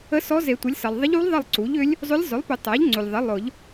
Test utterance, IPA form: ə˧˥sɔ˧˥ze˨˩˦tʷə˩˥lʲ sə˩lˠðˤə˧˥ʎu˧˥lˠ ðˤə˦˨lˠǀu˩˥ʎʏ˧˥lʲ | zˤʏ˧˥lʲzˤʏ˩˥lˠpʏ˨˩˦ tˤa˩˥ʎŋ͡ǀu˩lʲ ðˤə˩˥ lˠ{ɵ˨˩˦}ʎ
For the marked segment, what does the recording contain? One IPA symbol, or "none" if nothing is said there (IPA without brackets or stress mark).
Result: ʊ˨˩˦